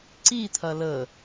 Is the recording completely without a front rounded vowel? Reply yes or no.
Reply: yes